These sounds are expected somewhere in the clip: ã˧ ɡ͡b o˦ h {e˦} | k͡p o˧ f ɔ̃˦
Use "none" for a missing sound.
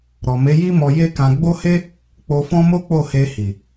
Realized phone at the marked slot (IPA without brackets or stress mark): e˦